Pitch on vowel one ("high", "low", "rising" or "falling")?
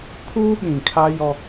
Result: high